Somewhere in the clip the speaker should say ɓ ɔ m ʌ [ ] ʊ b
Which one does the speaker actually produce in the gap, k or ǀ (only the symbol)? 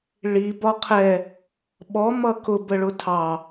k